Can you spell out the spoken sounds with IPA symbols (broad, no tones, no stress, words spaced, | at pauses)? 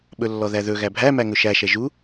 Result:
ɓɵlːɔðæðɵ ɣæbʱæ mæŋɵʃæ ʃɛʒu